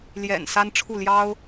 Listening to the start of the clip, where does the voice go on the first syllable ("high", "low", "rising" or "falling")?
low